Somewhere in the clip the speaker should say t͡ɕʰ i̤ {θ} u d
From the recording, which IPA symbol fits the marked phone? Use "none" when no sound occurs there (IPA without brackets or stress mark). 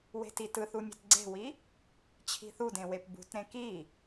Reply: θ